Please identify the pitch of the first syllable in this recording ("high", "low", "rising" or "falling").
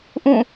falling